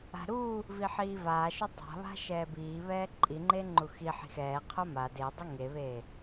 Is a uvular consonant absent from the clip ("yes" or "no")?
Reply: no